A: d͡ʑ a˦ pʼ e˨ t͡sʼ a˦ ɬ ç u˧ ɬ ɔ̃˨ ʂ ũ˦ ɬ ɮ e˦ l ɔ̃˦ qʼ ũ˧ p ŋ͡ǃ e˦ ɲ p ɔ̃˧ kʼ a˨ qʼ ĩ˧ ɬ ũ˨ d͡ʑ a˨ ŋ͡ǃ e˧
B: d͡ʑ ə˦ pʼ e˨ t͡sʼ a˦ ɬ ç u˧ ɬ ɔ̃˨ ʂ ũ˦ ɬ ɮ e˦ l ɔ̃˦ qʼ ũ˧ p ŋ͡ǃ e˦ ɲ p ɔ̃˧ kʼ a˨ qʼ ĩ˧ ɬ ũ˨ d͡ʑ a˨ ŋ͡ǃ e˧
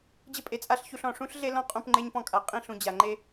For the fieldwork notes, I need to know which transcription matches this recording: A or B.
B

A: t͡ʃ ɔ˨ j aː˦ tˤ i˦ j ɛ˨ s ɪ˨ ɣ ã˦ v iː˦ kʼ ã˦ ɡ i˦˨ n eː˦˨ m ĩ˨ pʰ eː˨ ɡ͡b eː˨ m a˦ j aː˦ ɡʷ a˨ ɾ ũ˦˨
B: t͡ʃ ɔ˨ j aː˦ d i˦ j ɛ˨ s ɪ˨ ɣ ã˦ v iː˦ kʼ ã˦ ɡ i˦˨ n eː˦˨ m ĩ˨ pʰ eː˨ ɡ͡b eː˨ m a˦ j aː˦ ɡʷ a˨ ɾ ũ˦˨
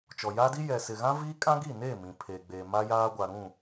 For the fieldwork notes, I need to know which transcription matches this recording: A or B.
B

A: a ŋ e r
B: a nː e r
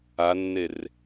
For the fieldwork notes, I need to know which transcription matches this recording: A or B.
B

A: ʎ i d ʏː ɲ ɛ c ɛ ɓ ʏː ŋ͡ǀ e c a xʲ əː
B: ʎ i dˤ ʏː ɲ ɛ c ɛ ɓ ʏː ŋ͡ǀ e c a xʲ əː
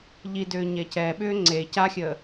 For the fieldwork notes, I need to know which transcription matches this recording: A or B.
A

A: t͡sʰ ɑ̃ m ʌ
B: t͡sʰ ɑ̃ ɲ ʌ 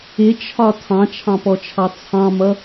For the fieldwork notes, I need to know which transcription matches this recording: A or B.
A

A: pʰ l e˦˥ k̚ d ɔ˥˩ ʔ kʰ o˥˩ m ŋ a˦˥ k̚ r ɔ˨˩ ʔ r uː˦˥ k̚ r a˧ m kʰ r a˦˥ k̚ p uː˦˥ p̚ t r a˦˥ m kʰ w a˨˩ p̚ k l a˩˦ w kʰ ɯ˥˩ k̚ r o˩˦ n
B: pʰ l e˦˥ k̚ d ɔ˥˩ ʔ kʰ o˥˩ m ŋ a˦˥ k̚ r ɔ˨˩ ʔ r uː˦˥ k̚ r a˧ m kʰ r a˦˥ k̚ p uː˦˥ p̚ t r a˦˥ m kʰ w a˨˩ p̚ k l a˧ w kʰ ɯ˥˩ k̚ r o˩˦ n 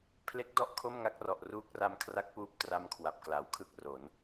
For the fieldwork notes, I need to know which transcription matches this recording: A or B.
A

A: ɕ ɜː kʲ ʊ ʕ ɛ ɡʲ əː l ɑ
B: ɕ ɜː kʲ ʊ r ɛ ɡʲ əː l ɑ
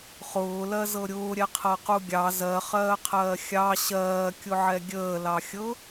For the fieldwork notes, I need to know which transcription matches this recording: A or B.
A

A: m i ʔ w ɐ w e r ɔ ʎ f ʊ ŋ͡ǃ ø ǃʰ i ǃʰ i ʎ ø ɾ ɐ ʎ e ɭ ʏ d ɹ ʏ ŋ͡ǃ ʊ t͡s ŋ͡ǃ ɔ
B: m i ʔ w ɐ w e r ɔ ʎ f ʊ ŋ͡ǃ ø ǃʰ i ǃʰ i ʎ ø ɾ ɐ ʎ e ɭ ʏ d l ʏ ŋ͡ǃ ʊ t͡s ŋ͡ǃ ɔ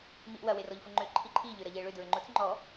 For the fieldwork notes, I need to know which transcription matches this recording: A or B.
A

